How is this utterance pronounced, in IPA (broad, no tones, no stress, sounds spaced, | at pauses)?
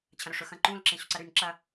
t͡ɕʰ ɐ̃ ɾ ɵ ʂ ɵ x ɐ̃ ǃ ũ l ǁ ẽ ɕ ʉ ǀ ɐ ɾ ʉ n ǁ ɐ